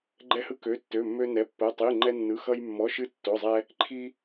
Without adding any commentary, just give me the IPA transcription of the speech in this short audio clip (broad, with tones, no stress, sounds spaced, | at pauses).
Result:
ɡ͡ǃ ɛ˧ h ɯ˧ k ø˩˧˩ tː ø˩˧˩ mː ø˧ n ɛ˩˧˩ pː ə˩˧˩ tˤ i˩˧˩ ŋ͡ǃ ɛ˧ nː ɯ˩˧˩ x ʌ˧ j mː ɔ˩˧˩ ʃ ɨ˧ tː o˩˧˩ zˤ ɛ˧ | ǃʰ i˧